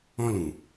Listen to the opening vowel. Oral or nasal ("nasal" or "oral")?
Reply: nasal